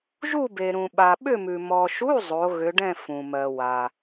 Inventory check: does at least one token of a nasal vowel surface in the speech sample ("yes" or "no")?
yes